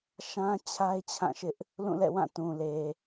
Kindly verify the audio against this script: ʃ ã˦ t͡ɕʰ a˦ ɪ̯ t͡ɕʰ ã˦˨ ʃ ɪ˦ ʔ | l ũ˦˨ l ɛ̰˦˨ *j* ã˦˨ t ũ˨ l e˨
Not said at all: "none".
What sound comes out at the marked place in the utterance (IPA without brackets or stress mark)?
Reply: w